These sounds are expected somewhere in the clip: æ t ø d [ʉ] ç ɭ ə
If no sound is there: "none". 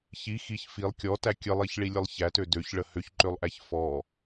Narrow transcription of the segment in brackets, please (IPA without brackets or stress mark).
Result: ø